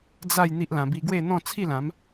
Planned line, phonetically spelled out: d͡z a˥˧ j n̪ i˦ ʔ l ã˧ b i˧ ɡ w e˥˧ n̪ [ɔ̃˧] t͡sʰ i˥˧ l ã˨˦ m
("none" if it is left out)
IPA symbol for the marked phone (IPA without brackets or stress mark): ɔ̃˥˧